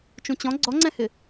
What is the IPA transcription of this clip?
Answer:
t͡ʃ ũ t͡ɕ ɔ̃ ɡ͡ǀ ɔ ŋ͡ǀ ɛ̃ h ɪ

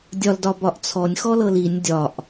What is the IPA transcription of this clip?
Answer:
dʲ ɒ l d ɒ b ɒ ʔ t͡sʰ ɔ nʲ x ɔ l ɤ l i nʲ dʲ ɒ ʔ

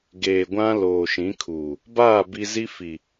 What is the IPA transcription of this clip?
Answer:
ɡ eː˨ ɡʷ ã˦ l oː˨ ʃ ĩ˨˦ kʰ uː˨ | b aː˦˨ b i˦ z i˦ f i˨

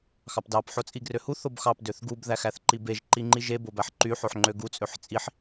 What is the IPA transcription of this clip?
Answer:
x ɑ p d ɑ p ħ o t͡sʼ i ɡ r ø h u θ o b x ɑ p d ø θ ɡ u b ð æ x æ θ ǃ i b e ʒ ǃ i ŋ͡ǃ i ʒ e b o b æ ħ ǃ y ħ o ħ ŋ͡ǃ ø ɡ u t͡sʼ ø ħ t͡sʼ i ħ

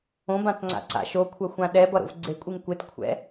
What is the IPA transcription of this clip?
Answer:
õ b ã t ŋ͡ǀ a̰ ǀ a̰ ʃ o kʷʰ ɐ xʷ ã ɗ ɛ b ʌ ɾ o̰ v ɡ͡ǀ e kʷʼ i ŋ kʷ e t kʷʰ ɛ̰

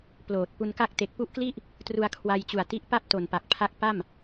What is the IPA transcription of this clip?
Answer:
p l oː˨˩ t̚ p u˧ n k a˥˩ k̚ t e˨˩ k̚ p u˦˥ ʔ k l i˥˩ ʔ | t r u˧ a̯ kʰ w a˧ j t͡ɕ u˨˩ a̯ t i˦˥ ʔ p a˥˩ p̚ t o˨˩ n p a˨˩ k̚ pʰ a˦˥ k̚ p a˥˩ m

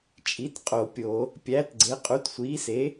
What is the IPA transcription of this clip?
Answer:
t͡ʃʼ i˨˥ t qʼ o˧˩˧ pʲ o˧˩˧ | pʲ æː˨˥ t ɡ͡ǀ e˨˥ qʼ u˨˥ t sʷ iː˨˥ s e˨˥

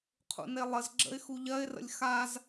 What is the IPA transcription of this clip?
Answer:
qʰ ṵ n e lˠ ə z ɡ͡ǁ ə̰ ɪ̯ x u ʎ ɜ ɪ̯ r ə̰ lʲ x a z

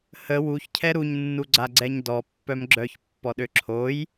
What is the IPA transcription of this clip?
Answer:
h ə w u ç cʰ ɛ ɾ u ɲ nː u ɡ͡ǀ a ɡ͡ǀ ɛ ɲ d ɔ pː œ m ɡ͡ǁ œ ç pː ɔ ɗ ø ǁʰ o j

